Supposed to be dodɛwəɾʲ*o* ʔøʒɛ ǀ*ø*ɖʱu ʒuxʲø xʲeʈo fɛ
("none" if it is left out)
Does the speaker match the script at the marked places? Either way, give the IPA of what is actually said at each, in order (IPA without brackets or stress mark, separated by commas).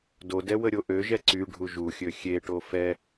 o, y